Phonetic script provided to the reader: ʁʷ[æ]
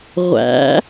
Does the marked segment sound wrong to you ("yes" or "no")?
yes